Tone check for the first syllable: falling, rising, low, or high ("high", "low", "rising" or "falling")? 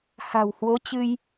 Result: low